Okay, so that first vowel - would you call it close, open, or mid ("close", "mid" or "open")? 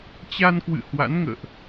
open